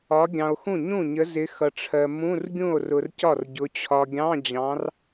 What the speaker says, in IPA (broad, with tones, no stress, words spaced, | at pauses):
ɒ˨˦ ɡʲɑ̃˨o̯xũ˥˩ ɲũ˥˩ɲə˨˦zɪ˨˦ xʌ˨ʈ͡ʂʰɜ˨ mũ˧˥˧rɡʲũ˥˩o̯rʊ˨r cɒ˥˩rɟʊ˨˦ t͡ɕʰɒ˨ɡʲɑ̃˧˥˧d͡ʑɑ̃˨˦r